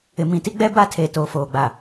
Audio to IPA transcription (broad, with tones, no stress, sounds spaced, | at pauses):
ɪ˨ m ĩ˨ t i˦ ɡ͡b ɛ˦ b a˦ tʰ e˨ t oː˨ f oː˨ ɡ͡b a˨